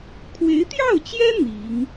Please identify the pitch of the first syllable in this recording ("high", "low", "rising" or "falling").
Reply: rising